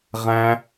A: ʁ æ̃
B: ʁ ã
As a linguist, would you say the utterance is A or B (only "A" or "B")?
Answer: A